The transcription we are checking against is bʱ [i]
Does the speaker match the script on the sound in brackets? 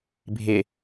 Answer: no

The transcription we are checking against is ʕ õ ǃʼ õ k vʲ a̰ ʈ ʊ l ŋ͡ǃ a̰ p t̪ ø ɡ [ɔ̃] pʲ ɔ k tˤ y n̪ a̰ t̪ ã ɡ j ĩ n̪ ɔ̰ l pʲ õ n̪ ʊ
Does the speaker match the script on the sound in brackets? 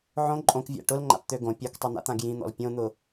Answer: no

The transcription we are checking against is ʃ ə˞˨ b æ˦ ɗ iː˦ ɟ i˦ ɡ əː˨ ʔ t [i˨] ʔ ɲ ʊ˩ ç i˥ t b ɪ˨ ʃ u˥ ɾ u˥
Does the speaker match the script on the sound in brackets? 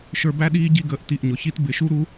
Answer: yes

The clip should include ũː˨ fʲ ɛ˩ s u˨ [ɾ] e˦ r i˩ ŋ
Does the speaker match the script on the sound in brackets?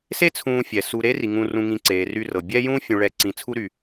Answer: yes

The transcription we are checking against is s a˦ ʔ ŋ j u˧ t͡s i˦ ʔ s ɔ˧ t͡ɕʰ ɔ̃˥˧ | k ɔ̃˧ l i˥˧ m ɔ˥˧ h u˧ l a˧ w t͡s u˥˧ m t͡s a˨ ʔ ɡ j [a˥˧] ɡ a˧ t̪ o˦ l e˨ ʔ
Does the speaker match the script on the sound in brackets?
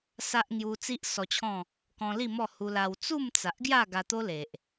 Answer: yes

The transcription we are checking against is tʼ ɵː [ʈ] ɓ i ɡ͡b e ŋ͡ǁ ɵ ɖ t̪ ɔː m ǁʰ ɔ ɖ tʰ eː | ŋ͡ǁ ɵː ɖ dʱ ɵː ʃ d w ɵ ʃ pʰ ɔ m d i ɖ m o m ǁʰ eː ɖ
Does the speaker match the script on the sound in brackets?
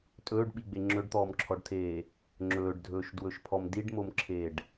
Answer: no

